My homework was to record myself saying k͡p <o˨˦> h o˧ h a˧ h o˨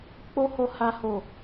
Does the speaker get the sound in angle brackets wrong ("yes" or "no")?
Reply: yes